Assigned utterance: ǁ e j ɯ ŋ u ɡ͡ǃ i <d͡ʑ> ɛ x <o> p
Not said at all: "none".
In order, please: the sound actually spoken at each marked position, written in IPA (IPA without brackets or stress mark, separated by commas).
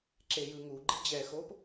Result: d͡ʑ, o